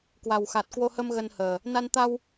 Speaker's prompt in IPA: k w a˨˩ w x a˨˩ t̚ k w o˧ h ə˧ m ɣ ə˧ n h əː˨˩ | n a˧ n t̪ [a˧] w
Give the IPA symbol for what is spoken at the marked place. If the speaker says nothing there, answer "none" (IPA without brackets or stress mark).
a˧